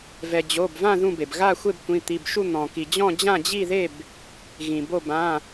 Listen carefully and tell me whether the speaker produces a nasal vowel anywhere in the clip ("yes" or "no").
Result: yes